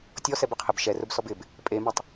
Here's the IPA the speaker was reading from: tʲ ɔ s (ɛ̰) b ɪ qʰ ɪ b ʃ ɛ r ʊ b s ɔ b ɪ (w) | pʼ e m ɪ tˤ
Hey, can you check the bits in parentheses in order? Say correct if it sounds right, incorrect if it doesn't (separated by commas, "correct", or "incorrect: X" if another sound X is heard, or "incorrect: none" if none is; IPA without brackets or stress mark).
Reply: incorrect: ɛ, incorrect: b